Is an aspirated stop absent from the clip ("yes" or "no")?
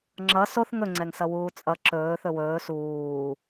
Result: yes